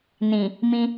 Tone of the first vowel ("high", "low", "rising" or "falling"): low